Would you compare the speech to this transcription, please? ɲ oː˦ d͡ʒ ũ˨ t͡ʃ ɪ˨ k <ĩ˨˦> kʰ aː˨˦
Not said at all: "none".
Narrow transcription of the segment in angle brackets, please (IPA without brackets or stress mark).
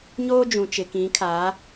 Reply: ĩ˨˦